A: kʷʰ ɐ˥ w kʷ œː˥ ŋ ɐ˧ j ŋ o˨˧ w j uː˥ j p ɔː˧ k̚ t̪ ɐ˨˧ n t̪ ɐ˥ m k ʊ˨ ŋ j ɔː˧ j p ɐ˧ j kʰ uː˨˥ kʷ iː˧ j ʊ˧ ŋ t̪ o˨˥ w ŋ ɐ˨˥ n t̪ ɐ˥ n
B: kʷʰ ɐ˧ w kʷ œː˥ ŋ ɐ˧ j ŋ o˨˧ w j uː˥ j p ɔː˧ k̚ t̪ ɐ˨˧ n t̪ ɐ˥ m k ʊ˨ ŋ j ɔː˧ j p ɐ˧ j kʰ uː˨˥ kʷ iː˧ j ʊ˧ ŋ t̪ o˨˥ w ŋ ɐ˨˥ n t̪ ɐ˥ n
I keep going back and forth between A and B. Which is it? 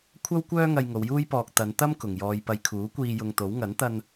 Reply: A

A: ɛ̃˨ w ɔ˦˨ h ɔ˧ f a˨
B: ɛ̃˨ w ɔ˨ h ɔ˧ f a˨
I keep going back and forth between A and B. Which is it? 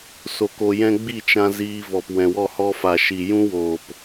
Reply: A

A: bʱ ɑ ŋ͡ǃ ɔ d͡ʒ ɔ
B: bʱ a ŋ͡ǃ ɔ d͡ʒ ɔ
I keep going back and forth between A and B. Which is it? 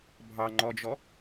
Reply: A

